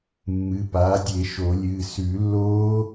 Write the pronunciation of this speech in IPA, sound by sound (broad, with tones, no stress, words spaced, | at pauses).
mːɨ˩˧˩paː˩˥ dʲe˨˩˦ʃo˨˩˦lʲɨː˩˧˩ sʉ˨˩˦lːoː˦˥